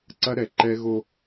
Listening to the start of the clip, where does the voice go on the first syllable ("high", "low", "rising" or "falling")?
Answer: high